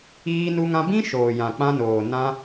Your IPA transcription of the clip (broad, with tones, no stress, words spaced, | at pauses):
iː˧nu˧ŋã˧bĩ˦ ʃoː˨jã˨k͡pã˧noː˨ nã˧